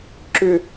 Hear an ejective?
no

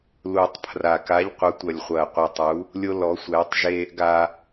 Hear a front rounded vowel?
no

